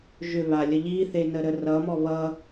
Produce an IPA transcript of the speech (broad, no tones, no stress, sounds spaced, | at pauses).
ʒ ʏ β a lʲ ə ʎ i θ e n ə ɾ ə r ʌ m ɔ β ʌ